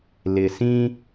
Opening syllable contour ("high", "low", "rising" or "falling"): low